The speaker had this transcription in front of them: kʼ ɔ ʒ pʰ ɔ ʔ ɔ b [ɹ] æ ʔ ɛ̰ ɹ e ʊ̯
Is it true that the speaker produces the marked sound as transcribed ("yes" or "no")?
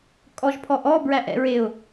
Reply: yes